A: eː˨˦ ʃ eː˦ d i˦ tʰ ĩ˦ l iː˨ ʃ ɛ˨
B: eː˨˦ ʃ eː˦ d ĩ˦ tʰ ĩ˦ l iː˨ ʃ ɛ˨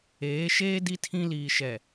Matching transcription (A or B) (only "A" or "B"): A